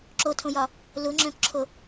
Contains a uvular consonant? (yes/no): no